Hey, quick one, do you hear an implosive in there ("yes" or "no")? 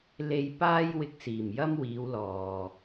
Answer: no